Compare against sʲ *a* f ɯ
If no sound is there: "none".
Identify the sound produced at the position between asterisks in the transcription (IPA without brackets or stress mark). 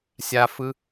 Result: a